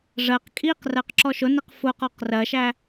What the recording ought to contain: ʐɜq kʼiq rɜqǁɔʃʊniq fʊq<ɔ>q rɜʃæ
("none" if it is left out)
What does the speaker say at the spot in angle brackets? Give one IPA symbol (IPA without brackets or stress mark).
ɔ